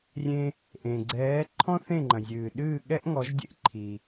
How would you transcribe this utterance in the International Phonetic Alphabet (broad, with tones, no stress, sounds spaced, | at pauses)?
rʲ ẽ˧ | ʔ ẽ˩ ɡ͡ǀ ɛː˩˥ ǃʰ ɔ̃˥ θ ẽ˥˩ ŋ͡ǃ ɐ̃˩ zʲ ɨː˩ ɗ ɨː˥˩ ɠ ɛ˥ ʔ ŋ ɔ˩˥ ʒ dʲ ḛ˥ ʔ ǃʰ i˩